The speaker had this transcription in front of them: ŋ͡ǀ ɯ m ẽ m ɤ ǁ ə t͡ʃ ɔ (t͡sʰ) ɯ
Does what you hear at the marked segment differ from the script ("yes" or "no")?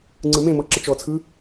no